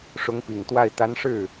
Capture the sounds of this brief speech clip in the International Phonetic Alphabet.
ʂ ʊ˧˥ ŋ p i˨˩ ŋ t̪ w a˥˩ ɪ̯ t̪ a˧˥ n ʂ ɻ̩˥˩

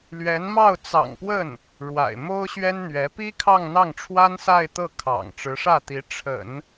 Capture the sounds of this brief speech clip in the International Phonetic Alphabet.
l ɥ ɛ˧˥ n m ɑ˥˩ ʊ̯ t͡s ɑ̰˨˩ ŋ p w ə˥˩ n | ɻ w a̰˨˩ ɪ̯ m o˥ ʊ̯ ɕ ɥ ɛ˥ n n̪ ɥ ɛ˧˥ p i˥ kʰ ɑ˥˧ ŋ n̪ ɑ˥˩ ŋ ʈ͡ʂʰ w a˥ n s a˥˧ ɪ̯ t̪ ɤ˥˩ kʰ ɑ̰˨˩ ŋ ʈ͡ʂ ɻ̩˧˥ ʂ ä˥˩ t̪ i˧˥ ʈ͡ʂʰ ə̰˨˩˦ n

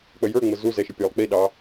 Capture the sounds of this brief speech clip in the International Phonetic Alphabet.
k͡p ə j ə˞ ŋ͡m ə z u z ɛ ʃ ɪ pʲ ə˞ lˠ k͡p i ɗ ɑ

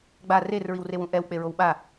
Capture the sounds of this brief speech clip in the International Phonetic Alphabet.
ɡ͡b a r e r ɹ i w r e w ũ ʔ ɛ w k͡p e ɹ o w ɓ a

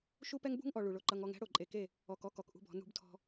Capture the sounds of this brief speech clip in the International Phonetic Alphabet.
ʃ u˦ p ɛ˦ ŋ b ṳ˦ ŋ ʔ ɔ˨ ɭ u˨ ɭ o˦ ǃ ʌ˦ ŋ ɔ˦ ŋ ɛ̤˦ ɽ o˨ ǃʼ e˨ k e˦˨ | ɔ˨ k ɔ˦ k ɔ˨ k ʔ ṳ˦ b ɔ̤˨˦ n ṳ˦ b tʰ ɔ̤˦

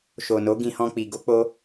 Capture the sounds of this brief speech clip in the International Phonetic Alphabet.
ʃ o˨ n o˨˦ ɡ ĩ˧ h ɔ̃˧ k͡p i˨ ɡ o˧ k͡p o˧

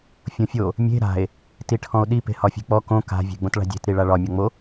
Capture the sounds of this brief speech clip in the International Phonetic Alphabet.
fʲ õ fʲ o | mʲ e̤ ɾ a̤ e̯ | t i ʈʰ ɔ̃ o̯ ɗ i p e̤ h ɒ fʲ e̤ k͡p ɔ k õ k a̤ vʲ e̤ ɡ͡b õ t ɭ a̤ dʲ e̤ t ɾ i ɭ a ɭ ɒ mʲ ɔ ŋ͡m o

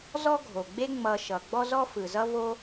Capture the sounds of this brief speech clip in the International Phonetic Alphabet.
z ɔ˥ ɡʱ o˩ ɡ͡b e˥ ŋ͡m ʌ˧ ʃ ʌ˩ ɡ͡b ɔ˥ z ɔ˥ f ɯ˩ z ʌ˥ v o˥

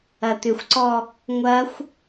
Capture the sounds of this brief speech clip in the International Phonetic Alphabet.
ɐ t̪ ʏ xʷ ǀ ɔ | ŋʷ ɐ xʷ

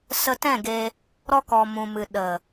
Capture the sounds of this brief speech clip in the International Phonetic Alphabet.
s ə˧ t ɛ̃˦˨ ɡ e˧ | ɾ ɔ˧ k ɔ˨ m ũ˨ m ɨ˨ ɗ ə˨

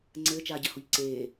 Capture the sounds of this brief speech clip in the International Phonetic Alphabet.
ŋ͡ǀ ɘː t͡ʃ aː ɟ ɐ h o ʎ ǀ eː

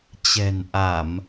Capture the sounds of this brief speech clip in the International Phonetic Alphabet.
t͡ɕ ɛ̤˨˩ n ʔ a˧˩˨ m

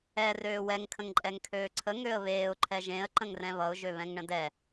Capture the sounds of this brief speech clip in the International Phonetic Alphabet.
ɛ r øː w ɛ ŋ kʰ ə̃ ŋ ǃʼ ɛ ŋ kʰ øː ǀʰ ə ŋ ø ə̯ β eː ʊ̯ ǃʰ ɛ ʒ ẽ ə̯ ǃ ə̃ ŋ r ɛ̃ β ʌ ʊ̯ ʒ ø β ɛ̃ ŋ ɳ ə̃ d ɛ

